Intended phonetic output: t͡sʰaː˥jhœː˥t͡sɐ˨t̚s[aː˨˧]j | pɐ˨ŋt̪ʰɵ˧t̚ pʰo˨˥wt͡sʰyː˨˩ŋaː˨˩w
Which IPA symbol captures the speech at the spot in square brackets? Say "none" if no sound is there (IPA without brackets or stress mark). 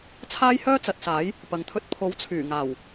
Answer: aː˨˥